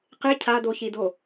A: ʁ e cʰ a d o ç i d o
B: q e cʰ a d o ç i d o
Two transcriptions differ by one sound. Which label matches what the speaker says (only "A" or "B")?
B